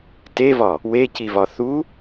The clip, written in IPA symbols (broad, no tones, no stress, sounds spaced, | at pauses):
t e v ɒ | w e c i v ɒ θ u